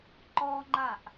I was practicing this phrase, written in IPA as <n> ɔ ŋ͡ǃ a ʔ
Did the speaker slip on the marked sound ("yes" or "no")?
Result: yes